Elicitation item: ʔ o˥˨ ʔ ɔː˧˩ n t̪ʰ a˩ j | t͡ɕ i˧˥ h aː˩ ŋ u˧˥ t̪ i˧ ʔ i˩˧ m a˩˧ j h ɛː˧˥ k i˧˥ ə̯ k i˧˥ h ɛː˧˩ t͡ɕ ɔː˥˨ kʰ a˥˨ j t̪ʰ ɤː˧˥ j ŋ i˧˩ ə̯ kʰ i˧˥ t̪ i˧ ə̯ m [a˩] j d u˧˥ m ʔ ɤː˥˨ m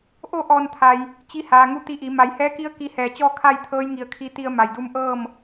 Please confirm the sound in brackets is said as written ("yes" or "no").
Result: yes